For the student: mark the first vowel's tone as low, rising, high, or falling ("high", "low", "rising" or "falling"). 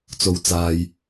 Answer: low